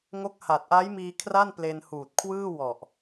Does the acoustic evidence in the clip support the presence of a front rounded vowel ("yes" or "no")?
no